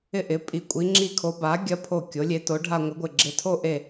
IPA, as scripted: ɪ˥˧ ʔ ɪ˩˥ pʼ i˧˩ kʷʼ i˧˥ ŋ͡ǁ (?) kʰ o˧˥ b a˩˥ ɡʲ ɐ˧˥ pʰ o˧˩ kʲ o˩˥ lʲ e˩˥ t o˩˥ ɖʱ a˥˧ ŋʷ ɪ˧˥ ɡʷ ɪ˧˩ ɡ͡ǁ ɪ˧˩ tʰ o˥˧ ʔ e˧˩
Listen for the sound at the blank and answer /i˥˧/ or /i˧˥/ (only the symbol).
i˥˧